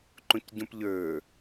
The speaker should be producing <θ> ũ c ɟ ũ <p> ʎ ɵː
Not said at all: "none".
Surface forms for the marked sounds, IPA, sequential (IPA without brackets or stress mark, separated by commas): ǃ, p